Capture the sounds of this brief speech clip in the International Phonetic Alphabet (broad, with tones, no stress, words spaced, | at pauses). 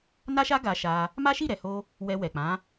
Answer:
na˦ʃa˦ ɡa˧ʃa˧ | ma˦ʃi˦˨ɾɛ˨ho˧ | wɛ˧wɛ˨ k͡pã˨˦